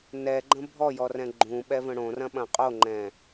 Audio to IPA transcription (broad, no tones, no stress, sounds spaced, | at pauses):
n ɛ ɡ͡ǃ ə̃ bʱ ɔ j ɔ r ɛ̃ ɡ͡ǃ ũ ɓ ɛ v ə̃ ɽ õ r ɐ̃ ɓ ɐ̃ qʼ o ŋ͡ǃ ɛ̃